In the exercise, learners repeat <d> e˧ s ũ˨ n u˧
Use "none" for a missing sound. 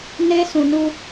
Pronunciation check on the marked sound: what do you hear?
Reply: n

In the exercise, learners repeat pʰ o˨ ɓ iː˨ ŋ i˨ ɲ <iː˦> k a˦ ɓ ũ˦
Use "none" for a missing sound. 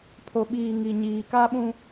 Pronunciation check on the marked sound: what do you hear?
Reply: iː˨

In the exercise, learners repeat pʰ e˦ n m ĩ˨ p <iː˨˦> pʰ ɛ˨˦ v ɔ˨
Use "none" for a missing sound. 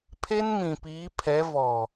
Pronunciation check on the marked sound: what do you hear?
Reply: iː˨˦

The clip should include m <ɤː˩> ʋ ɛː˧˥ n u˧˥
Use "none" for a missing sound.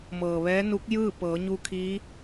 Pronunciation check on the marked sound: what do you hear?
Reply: ɤː˩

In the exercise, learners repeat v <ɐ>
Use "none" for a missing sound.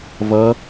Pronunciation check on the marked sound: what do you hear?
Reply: ɐ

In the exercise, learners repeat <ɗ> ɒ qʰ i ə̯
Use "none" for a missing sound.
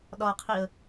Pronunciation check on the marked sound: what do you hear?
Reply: ɗ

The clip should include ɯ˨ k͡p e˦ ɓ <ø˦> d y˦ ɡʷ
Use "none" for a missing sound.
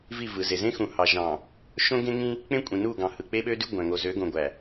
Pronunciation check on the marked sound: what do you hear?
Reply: ø˦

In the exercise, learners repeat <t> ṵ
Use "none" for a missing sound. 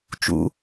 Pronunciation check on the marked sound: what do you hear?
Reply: t͡ʃ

